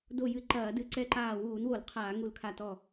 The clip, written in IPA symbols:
d o˧˩ j ɨ˧˩ ǃ ɐː˧˩˧ d ɨ˧˩˧ ǀ ɛ˧˩ ǃ aː˧˩ w uː˧˩˧ n w o˧˩˧ l qʰ aː˧˩˧ ŋ u˧˩ l kʰ a˧˩ t ɔ˧˩

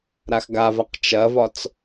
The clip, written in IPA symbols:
ɾ a x ɡ a v a q t͡ʃ ɐ v ɒ t͡s

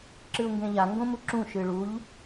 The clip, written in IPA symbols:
ǁ ɨ ʊ̯ ŋ ɡ ẽ ʎ a ŋ ɡ õ m u ǁ ũ ʃ ɨ ɭ u ʎ

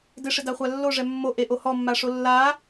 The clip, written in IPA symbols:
d ɪ ʂ ɪ d a χʷ a lː o ʐ ɛ mː o ʔ e ʔ o h ɔ mː a ʂ o lː a

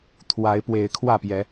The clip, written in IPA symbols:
t̪ʰ w a˨˦ ɪ̯ p w e˨˦ ɪ̯ kʰ w ä˥˨ p j ɛ˨˦

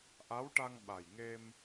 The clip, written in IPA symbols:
ʔ a˧˥ w ʈ a˧ ŋ ɓ a˨˩ j ŋ e˧ m

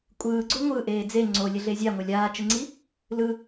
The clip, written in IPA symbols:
kʷʼ ɯː ɡ͡ǀ o ŋʷ ɯ ʔ eː d͡z e ŋ͡ǀ o lʲ e ɮ e zʲ a ŋʷ a lʲ aː t͡ʃ ɯ ŋ͡ǀ i | l ɯ

